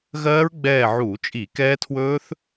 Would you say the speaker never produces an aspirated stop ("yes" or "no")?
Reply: no